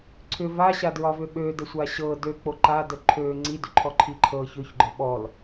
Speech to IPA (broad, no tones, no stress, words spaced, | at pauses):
ǀʰʏ vaɕadɹɒvʏ ɓødəsʷa ɕɤ døk͡po ǃadə ǃʰø ŋ͡ǀidʏǃʰɔǃʰi ǃʰɤ çøçɡ͡ǃɒ ɓɔl